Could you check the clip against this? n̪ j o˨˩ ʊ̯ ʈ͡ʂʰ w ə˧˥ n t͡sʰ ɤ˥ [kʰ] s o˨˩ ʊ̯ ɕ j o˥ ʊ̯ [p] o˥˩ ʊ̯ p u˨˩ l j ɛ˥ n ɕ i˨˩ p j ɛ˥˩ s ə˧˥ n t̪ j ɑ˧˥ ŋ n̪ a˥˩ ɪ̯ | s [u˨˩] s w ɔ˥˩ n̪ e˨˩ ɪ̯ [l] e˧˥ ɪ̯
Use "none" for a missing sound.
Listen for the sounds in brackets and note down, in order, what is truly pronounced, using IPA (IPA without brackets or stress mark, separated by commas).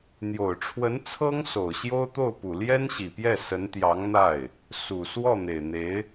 ŋ, t̪, u˨˩, n̪